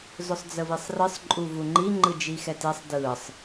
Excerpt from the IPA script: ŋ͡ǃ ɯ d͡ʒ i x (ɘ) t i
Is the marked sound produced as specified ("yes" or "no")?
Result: no